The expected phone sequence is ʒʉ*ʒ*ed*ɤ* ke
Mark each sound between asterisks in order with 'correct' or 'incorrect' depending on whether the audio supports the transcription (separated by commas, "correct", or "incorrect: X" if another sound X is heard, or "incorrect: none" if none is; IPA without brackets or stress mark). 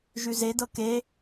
incorrect: z, correct